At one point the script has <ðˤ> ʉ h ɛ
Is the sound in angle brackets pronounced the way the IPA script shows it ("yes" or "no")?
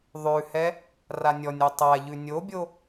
yes